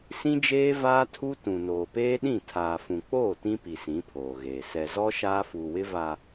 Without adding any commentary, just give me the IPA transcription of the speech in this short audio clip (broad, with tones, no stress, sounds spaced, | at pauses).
s ĩ˦ d͡ʒ eː˦ v aː˦ tʰ u˦ t ũ˨ n oː˨ p eː˦ ɗ ĩ˦˨ tʰ aː˨ f ũ˨ k͡p oː˦˨ t ĩ˦ p i˨ s ĩ˨˦ pʰ oː˨ ɣ eː˨ s ɛ˨ z ɔ˦ ʃ aː˦ f uː˨ w ɪ˦ v a˨